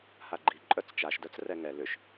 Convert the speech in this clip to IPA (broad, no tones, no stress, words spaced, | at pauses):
haɡ͡ǃi ǃʼœt͡st͡ʃaʃ dœt͡srɛŋɛ lʏʃ